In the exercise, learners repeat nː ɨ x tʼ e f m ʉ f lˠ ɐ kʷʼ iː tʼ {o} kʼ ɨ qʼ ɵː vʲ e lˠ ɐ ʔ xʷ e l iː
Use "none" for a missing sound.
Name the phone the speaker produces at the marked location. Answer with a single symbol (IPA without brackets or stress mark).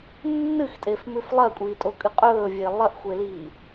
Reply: o